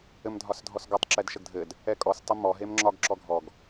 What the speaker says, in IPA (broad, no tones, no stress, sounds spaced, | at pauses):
ɘ m dʱ ɒ s dʱ ɔ s ɡ ɒ tˤ ǁ ɛ d ʃ ə ɡ dʱ ɘ d | ɛ kʼ ɔ s tˤ ɘ m ɔ ɦ e m ŋ͡ǁ ɒ ɡ ǁ ɔ ɡʱ ɔ ɡ